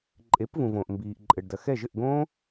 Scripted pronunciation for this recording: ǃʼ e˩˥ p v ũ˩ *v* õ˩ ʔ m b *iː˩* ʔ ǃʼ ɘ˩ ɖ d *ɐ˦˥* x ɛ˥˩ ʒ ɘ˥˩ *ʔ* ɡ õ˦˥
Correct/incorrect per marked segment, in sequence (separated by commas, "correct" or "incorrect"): correct, correct, incorrect, correct